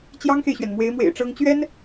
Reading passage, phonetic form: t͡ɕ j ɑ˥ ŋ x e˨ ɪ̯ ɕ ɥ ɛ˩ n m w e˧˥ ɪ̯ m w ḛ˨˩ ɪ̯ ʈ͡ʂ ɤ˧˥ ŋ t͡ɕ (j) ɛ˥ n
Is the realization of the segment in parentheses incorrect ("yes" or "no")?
yes